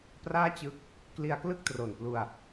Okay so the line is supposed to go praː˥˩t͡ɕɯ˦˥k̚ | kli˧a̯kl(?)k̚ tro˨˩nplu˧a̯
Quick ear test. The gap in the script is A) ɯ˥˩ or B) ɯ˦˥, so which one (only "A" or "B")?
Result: A